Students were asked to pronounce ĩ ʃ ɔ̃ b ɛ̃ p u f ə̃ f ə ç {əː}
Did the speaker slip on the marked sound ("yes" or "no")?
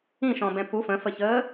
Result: no